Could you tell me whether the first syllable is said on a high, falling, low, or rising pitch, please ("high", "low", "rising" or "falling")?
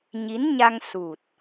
rising